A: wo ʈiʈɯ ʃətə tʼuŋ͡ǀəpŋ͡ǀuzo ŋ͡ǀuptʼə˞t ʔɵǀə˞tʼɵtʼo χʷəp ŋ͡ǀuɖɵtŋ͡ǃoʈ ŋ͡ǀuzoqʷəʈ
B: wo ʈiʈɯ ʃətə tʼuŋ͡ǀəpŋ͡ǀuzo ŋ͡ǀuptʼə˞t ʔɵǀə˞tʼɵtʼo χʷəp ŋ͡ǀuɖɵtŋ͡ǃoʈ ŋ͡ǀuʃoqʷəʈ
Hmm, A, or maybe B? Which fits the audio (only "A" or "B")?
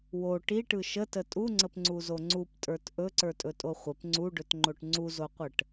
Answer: A